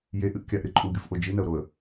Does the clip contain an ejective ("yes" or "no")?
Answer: yes